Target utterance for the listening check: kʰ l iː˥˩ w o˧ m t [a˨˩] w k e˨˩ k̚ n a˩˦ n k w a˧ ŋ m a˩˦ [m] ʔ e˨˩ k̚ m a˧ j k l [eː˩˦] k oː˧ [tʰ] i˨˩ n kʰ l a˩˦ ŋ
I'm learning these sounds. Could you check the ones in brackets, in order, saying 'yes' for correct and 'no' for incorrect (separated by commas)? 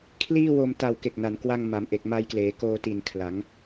yes, yes, yes, no